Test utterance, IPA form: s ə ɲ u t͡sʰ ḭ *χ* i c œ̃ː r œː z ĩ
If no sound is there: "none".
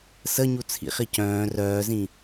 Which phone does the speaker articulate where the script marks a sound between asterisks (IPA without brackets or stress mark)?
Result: χ